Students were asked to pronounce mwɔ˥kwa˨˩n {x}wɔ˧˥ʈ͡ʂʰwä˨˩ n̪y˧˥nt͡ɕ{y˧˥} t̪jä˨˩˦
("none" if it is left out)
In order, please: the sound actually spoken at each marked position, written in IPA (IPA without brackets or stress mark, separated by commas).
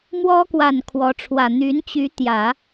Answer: kʰ, y˧˥